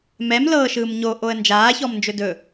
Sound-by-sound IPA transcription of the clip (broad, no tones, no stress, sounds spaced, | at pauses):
m ɛ m l ɤː ʃ ɯː m ɲ o ʔ o ə̯ n d͡ʒ aː ç ɔ m n d͡ʒ ɵ d ɵ